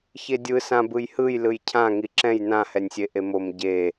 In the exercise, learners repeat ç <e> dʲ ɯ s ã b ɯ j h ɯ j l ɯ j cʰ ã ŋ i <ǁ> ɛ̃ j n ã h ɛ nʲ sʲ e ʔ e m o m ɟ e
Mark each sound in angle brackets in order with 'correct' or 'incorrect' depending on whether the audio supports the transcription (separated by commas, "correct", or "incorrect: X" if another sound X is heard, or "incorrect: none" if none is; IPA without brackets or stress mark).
correct, correct